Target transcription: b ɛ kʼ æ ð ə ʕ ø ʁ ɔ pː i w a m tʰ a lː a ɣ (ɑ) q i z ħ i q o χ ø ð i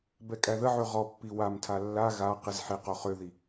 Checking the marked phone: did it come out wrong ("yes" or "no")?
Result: yes